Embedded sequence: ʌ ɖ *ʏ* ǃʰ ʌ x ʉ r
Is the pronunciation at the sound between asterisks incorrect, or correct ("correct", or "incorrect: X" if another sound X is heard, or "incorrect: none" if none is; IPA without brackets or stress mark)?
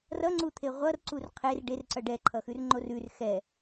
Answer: incorrect: ɛ